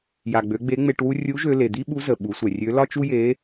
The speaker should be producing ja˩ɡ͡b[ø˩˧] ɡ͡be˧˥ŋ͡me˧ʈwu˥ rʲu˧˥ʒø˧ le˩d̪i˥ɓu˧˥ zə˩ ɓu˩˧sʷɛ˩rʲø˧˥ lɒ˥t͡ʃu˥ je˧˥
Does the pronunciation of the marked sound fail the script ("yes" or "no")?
no